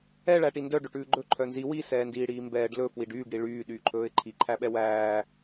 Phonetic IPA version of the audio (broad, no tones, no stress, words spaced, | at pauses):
ɛ ɭæʈindœ ɖɵʈʉːɡ͡ǃɵ ǃʰœnzi wi sɛːndiːɽiːmbɛːɖ lɵ fwiɖyːɡ ɽiɭyː ɗyːǃʰɵːɪ̯ǃʰi ǃʰæɓɛwæː